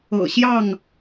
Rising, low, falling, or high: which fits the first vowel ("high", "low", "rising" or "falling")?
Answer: low